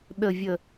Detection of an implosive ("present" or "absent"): present